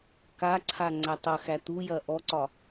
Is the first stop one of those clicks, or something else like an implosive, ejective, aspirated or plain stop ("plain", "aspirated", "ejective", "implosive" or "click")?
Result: plain